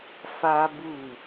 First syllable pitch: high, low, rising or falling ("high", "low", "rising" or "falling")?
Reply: high